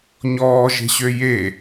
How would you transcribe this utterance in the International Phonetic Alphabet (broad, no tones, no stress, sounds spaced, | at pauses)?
ɲ ɔː ʒ e̤ ɕ ø j e